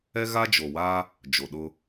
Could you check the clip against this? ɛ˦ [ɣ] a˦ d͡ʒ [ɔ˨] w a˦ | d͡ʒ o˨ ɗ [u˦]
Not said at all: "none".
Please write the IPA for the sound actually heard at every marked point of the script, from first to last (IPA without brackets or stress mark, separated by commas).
ɣ, o˨, ʊ˦